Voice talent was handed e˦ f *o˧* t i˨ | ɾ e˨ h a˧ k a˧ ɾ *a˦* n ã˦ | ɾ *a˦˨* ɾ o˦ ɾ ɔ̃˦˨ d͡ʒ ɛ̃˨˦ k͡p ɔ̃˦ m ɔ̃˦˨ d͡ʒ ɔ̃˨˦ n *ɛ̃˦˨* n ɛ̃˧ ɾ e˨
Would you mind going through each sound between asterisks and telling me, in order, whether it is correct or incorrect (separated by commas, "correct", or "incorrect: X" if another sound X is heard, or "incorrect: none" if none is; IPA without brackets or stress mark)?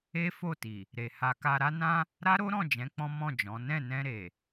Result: incorrect: o˦˨, correct, incorrect: a˦, correct